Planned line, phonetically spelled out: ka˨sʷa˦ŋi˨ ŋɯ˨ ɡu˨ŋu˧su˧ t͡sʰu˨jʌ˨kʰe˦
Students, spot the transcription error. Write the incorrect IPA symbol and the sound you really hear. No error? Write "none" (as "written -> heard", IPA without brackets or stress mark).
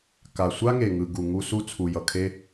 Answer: i˨ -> e˨